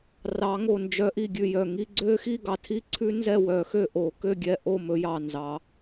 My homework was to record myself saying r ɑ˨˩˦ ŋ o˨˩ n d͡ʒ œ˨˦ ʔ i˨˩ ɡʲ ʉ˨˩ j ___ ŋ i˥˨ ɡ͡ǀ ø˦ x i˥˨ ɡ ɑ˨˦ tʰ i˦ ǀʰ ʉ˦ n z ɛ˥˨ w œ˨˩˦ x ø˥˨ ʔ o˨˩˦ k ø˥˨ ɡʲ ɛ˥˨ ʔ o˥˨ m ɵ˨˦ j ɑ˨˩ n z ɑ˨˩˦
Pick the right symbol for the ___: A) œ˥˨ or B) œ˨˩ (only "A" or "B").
B